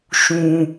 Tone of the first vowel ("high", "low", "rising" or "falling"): low